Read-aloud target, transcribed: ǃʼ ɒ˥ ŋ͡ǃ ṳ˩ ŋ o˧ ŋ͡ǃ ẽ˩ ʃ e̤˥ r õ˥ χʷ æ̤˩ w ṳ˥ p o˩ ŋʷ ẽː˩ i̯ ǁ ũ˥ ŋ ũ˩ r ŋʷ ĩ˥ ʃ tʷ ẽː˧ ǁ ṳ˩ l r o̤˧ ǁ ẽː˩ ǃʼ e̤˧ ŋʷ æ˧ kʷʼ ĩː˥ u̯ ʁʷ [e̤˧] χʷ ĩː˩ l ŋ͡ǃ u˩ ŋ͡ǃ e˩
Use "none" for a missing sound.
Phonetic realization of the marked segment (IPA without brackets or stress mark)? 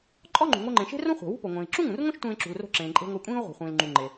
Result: e̤˩